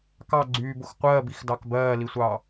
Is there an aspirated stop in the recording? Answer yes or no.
no